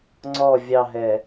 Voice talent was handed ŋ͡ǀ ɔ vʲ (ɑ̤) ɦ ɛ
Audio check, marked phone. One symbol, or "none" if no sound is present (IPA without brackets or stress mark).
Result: ɑ